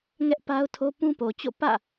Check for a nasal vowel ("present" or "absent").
present